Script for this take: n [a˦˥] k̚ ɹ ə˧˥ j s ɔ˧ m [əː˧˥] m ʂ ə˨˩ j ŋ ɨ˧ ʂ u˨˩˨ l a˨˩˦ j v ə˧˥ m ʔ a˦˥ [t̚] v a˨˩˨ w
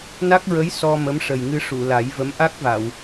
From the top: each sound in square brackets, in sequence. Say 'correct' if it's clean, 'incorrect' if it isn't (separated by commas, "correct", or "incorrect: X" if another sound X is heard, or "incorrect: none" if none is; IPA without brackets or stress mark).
correct, incorrect: ə˧˥, incorrect: k̚